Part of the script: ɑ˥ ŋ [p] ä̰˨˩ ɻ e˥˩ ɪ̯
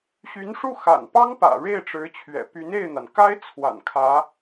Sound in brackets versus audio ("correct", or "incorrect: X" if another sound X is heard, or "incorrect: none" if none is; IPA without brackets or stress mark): correct